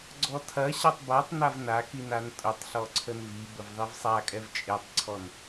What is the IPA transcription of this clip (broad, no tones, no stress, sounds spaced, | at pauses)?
ɡ͡ǀ ɔ tʰ ɐ ɕ a tˤ b a tˤ n a v n a k i n a n tʼ ʊ tˤ ɬ ɔ ǀʰ ə n v i b ə v ðˤ i v sˤ a kʼ ɛ v t͡ʃʼ e tˤ ǀʰ ɔ n